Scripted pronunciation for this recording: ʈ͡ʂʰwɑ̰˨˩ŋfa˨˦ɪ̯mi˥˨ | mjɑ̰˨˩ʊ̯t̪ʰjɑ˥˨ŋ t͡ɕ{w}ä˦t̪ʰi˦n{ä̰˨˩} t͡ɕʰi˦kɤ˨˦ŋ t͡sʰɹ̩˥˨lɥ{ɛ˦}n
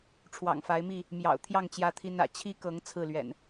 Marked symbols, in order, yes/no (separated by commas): no, yes, no